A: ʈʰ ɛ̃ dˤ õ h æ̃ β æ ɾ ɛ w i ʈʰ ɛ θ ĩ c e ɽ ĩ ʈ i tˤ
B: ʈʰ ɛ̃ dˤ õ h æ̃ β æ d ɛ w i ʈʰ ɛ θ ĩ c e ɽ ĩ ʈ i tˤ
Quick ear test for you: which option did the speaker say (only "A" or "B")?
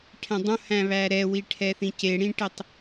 A